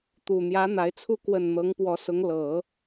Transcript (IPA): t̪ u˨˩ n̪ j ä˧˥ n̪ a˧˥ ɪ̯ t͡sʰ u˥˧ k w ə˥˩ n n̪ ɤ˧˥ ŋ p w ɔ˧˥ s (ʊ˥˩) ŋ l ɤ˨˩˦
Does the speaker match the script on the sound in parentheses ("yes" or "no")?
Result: no